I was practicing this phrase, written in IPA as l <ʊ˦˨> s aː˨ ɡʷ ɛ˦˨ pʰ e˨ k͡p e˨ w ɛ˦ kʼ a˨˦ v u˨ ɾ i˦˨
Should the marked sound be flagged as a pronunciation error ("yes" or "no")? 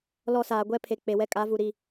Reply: yes